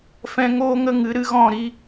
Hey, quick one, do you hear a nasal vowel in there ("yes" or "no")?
yes